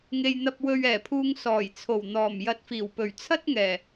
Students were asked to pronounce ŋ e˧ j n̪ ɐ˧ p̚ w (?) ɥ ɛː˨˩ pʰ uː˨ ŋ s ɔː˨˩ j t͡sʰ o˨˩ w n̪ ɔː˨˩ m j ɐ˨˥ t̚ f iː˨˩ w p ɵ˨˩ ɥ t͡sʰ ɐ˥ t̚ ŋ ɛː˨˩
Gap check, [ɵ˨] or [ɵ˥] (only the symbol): ɵ˨